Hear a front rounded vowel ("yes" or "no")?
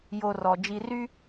yes